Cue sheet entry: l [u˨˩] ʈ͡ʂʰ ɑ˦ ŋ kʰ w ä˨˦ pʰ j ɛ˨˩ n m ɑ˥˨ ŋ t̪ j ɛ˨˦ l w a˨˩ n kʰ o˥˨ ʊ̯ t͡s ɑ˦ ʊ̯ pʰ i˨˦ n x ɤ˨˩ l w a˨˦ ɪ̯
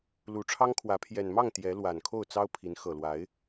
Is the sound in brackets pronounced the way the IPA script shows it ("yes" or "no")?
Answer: yes